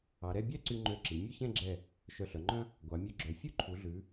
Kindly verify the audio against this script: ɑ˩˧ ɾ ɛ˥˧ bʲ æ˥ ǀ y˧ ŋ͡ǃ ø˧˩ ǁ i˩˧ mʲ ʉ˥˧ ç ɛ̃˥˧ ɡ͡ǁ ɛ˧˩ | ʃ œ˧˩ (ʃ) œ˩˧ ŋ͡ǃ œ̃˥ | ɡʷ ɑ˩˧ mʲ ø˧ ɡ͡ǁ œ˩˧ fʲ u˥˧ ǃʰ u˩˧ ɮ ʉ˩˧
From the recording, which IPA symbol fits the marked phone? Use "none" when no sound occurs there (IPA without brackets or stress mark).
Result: ɬ